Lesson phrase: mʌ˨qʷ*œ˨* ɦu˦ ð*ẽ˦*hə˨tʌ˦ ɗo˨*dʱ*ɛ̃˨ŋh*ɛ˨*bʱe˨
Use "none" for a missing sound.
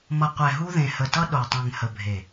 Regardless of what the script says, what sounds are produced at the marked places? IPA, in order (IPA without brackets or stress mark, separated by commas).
ɛ˨, ẽ˨, tˤ, ə˨